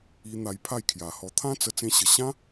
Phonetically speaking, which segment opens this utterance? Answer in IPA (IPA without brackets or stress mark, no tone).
i